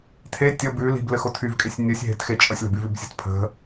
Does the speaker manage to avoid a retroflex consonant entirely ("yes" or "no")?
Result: yes